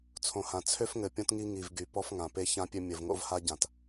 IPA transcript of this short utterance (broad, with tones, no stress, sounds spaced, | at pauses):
t͡sʰ õ˨ h ã˨ t͡sʰ ø˦ f ŋ ɘ˨ pʲ õ˦ t ŋ i˦ ŋ i˨ v ɡ y˨ p ɔ˦ f ŋ ã˨ p e˦ ç ã˦ pʲ ø˦ mʲ ɘ˨ v ŋ o̰˦ v h a˦ ɟ ã˨ t